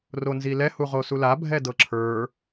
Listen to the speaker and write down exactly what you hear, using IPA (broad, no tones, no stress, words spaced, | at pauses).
ronzilɛ huʁosula bʱɛdɤǁʰə˞